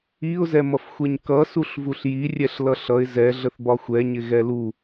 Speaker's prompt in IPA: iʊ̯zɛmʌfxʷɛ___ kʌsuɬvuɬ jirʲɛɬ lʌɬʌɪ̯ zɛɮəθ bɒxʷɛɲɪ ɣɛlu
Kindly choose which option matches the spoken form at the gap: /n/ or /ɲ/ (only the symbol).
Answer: ɲ